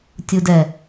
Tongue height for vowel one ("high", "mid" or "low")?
high